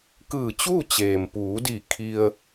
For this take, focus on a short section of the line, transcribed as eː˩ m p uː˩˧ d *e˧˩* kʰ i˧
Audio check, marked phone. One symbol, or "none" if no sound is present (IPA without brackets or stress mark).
i˧˩